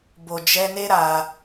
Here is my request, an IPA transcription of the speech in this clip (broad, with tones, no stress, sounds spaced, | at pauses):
b o˨ d͡ʒ ɛ˧ n e˦ ɾ a˧